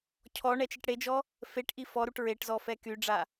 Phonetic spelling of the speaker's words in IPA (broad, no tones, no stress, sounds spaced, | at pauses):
cʰ ɔ ɳ ɛ t͡ʃ i ʈ ɽ e d͡ʒ ɔ | f e ʈ ʔ i f ɔ ɾ u ʈ ɹ e ʈ z ɔ f ɛ k y ɖ͡ʐ a